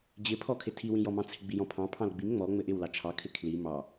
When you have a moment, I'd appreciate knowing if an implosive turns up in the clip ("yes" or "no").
no